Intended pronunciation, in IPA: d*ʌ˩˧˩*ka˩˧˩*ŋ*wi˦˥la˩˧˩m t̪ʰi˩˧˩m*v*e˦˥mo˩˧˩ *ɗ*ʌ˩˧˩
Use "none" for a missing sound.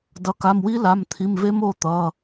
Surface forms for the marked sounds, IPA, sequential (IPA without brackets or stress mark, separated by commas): ʌ˩˧˩, m, v, t̪